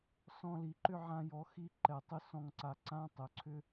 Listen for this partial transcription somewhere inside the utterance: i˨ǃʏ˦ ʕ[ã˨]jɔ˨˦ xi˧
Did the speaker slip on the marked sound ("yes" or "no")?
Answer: yes